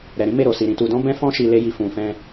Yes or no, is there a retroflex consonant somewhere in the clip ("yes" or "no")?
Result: no